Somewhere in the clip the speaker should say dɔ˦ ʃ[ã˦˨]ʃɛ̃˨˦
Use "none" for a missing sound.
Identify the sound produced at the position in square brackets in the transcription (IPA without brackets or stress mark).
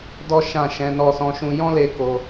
ã˦˨